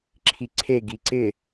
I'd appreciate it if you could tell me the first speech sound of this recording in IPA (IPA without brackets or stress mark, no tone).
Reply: ǁʰ